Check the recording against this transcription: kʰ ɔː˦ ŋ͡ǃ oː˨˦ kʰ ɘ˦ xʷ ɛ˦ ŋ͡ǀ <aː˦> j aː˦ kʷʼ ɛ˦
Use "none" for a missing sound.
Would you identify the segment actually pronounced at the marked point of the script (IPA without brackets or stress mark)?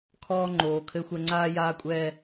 aː˦